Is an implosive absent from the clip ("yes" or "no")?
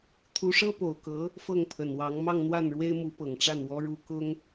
yes